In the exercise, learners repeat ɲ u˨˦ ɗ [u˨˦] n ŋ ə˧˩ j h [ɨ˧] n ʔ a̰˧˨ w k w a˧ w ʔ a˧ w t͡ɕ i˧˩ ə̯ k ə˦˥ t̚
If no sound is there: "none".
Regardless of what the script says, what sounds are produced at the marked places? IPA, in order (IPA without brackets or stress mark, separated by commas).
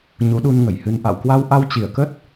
u˧, ɨ˧